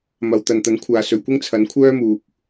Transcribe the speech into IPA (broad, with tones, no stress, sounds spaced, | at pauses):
m ɐ˨ w t̪ ɐ˨ n t̪ ɐ˨˥ n kʷʰ aː˨ s ɵ˨ ɥ kʷ ɪ˥ ŋ t͡sʰ ɐ˨˥ n kʷʰ œː˥ m uː˨ k̚